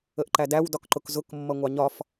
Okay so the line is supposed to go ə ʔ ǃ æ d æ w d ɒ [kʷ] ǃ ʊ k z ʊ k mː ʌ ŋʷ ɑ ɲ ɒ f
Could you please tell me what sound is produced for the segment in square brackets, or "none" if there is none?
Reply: k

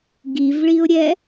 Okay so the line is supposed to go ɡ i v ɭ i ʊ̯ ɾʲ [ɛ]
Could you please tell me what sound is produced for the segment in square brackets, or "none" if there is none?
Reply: ɛ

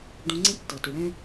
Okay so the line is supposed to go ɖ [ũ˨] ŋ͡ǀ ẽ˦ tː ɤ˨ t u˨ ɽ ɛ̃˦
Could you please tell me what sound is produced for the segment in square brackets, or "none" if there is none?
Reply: ũ˧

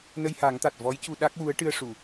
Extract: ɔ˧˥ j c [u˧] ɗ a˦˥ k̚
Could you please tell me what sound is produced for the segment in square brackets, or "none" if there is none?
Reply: u˧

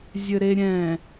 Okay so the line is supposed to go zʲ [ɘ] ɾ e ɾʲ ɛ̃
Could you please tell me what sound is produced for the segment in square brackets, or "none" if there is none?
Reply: ɘ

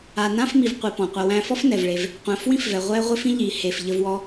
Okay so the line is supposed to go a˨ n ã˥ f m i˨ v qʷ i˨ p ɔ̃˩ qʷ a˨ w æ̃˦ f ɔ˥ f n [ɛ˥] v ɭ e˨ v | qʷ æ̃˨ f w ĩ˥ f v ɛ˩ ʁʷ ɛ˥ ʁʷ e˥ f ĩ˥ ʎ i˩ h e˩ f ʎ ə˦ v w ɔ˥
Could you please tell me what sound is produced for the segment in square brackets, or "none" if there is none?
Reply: ɛ˩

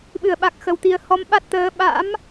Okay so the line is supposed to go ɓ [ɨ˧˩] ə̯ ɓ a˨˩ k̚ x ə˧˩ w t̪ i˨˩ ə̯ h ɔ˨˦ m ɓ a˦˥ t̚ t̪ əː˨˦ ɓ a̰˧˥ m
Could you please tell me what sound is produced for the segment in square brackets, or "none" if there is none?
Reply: ɨ˧˩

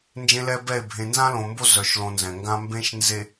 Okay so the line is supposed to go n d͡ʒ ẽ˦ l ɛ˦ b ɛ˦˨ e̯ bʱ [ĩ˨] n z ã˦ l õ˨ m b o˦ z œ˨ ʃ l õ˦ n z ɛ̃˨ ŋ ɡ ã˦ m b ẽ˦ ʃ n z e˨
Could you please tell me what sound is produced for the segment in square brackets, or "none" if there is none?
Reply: ẽ˨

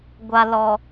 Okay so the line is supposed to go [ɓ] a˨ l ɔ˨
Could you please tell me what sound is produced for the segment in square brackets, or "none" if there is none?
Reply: ɡʷ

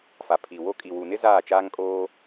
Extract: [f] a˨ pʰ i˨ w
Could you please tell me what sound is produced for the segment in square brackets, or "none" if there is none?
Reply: f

